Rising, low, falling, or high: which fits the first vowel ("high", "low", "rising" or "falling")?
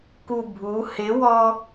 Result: low